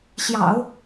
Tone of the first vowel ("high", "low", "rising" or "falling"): low